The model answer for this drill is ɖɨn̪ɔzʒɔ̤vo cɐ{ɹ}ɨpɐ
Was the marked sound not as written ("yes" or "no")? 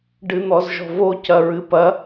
no